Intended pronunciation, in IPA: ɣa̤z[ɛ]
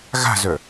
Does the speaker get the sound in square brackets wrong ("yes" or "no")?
yes